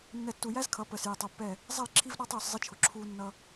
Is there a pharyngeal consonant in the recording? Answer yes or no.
no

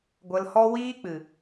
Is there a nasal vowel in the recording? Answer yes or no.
no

